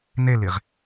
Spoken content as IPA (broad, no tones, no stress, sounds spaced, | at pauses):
n e l i ʁ